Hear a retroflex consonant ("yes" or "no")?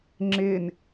no